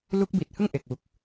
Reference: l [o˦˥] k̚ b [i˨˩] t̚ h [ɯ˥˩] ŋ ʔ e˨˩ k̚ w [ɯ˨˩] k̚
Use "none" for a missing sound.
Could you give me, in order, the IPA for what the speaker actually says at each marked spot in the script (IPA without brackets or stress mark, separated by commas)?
u˦˥, i˨˩, ɯ˥˩, u˨˩